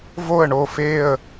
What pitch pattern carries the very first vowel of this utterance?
falling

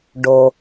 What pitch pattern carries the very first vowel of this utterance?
low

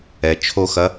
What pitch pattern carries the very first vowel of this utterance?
low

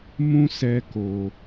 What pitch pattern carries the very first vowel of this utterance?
high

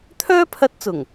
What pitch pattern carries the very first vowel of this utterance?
high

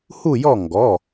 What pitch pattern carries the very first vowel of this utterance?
falling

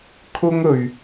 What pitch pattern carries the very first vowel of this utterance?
high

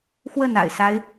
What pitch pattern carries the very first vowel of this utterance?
falling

